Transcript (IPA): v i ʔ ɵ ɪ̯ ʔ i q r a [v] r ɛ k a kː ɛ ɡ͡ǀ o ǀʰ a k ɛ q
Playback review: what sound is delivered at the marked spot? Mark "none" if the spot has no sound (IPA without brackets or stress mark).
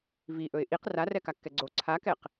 none